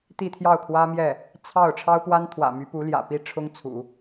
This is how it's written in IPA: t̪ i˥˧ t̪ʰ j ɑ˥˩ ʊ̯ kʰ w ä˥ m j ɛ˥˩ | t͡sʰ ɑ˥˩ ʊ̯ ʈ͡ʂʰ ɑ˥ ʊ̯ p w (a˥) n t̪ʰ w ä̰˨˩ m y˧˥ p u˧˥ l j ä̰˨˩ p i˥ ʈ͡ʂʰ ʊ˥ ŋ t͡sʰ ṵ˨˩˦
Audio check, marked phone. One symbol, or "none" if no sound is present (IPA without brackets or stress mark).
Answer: a˥